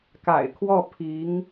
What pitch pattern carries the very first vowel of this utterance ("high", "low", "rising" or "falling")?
low